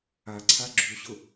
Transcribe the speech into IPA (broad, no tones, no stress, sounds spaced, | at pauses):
a ǀʰ a ɡ͡ǁ u ɕ ʊ